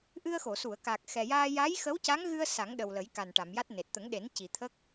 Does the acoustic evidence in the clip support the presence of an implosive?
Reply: yes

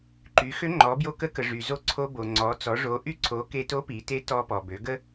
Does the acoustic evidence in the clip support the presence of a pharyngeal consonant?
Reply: no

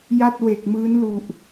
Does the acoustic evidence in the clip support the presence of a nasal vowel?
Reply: no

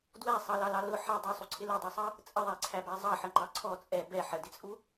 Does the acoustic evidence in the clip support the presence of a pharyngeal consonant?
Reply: yes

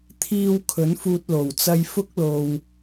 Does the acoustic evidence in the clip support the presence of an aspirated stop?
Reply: yes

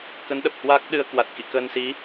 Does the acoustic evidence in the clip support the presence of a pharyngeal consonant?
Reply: no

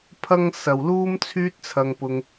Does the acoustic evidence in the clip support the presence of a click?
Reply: no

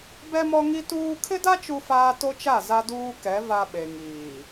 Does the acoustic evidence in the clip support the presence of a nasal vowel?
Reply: no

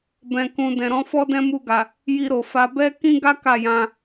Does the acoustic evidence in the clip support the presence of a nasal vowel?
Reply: yes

